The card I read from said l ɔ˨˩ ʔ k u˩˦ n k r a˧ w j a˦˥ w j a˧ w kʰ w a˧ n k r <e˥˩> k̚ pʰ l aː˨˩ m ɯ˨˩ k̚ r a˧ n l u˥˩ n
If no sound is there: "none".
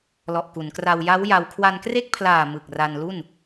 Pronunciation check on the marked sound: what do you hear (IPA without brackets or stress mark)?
e˥˩